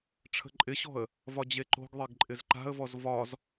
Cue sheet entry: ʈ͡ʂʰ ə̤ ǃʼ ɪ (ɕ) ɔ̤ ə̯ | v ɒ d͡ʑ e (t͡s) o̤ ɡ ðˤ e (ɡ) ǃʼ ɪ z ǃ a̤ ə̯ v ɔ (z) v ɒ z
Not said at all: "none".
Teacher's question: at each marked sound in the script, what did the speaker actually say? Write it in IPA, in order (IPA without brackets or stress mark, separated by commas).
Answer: ɕ, ǃ, ɡ, z